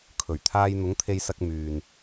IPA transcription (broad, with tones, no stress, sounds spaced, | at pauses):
kʰ ɵ˨˩ ɥ t̪ʰ aː˧ j n̪ ʊ˨˥ ŋ t̪ʰ e˧ j s ɐ˧ k̚ m yː˨ n